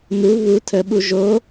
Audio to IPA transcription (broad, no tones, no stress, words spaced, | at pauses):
nu βu tʰəɓu ʒo